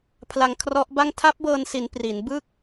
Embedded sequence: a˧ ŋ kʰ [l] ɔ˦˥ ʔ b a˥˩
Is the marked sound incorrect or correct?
incorrect